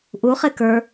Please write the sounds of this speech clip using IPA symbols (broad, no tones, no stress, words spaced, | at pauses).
ʔuχek ə˞